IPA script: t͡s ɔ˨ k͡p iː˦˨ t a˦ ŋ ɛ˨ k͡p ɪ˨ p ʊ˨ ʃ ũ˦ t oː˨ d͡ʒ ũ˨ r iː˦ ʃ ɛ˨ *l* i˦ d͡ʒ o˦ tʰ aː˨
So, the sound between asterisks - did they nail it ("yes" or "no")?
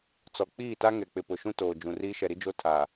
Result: no